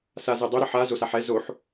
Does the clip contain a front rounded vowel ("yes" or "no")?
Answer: yes